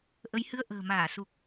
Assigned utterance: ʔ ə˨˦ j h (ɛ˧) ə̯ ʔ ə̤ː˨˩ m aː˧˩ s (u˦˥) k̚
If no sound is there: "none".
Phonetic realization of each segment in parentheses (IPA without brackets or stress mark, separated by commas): ɨ˧, u˨˩